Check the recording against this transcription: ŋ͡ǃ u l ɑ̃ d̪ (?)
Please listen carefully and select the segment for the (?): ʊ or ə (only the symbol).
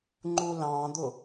ʊ